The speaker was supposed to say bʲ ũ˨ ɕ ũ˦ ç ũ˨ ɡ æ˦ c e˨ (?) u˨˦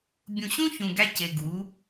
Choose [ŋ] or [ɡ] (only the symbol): ɡ